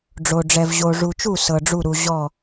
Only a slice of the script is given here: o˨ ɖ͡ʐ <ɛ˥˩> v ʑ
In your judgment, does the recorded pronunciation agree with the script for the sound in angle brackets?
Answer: no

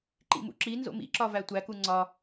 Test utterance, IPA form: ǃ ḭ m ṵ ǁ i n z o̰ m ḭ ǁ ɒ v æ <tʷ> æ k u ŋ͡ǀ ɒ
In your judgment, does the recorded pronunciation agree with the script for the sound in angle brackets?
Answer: yes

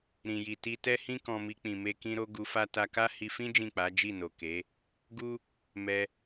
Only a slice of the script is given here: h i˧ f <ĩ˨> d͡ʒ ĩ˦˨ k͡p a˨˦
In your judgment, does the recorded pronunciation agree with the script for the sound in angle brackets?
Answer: no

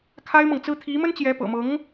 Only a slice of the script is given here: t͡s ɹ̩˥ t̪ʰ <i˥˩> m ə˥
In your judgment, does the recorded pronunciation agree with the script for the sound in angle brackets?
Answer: no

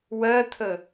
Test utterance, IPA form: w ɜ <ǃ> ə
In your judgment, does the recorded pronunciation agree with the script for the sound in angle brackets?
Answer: no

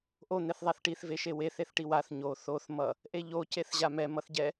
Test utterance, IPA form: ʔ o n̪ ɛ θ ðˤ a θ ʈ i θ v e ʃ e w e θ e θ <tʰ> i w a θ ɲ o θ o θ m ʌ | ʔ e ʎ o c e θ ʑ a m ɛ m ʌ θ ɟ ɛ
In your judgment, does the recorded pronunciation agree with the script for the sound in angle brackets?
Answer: no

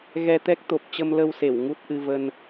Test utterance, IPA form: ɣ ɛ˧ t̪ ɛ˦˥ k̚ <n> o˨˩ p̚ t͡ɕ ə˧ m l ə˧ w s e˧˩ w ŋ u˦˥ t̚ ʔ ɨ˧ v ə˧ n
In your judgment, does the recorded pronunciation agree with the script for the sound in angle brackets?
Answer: no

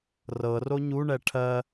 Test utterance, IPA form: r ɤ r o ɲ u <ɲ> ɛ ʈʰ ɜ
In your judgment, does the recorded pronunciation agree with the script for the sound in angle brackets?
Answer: no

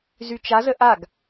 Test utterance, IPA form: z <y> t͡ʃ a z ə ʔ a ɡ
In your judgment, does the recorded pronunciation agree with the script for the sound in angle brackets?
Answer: yes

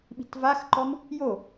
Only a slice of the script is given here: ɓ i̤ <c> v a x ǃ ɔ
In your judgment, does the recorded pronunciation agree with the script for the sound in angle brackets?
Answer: no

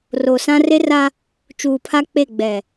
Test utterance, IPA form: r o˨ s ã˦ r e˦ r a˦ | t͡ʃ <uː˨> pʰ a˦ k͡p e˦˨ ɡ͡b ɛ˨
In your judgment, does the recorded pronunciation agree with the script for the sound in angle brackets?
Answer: yes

